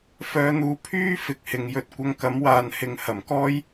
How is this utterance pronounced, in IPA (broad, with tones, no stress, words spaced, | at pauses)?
fœː˧n̪uː˧ pʰyː˥ fɪ˨˥k̚hɪ˨˧ŋjɵ˧t̚ kʷɐ˧ŋkɐ˨˥mwaː˨n hɪ˨˧ŋhɐ˨˩mkɔː˥j